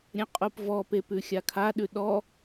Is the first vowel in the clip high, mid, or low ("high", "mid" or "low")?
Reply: mid